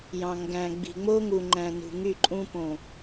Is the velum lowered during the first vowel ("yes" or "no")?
yes